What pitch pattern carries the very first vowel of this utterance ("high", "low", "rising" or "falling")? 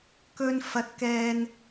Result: high